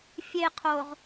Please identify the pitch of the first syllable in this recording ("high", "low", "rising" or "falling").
low